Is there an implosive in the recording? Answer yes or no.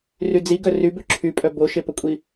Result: no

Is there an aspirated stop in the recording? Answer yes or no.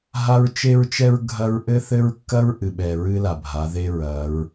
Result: no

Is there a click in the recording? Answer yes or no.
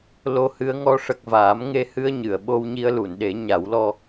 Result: no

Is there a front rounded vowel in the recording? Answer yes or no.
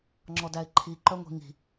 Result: yes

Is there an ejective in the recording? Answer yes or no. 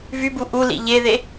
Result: no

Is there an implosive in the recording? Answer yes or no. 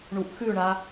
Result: no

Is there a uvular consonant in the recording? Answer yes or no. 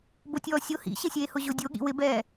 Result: no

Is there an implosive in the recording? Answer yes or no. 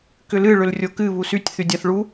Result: no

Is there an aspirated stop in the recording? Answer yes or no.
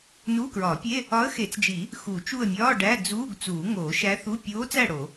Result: no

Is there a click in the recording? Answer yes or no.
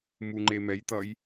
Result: yes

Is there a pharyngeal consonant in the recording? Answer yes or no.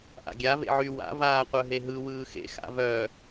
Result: yes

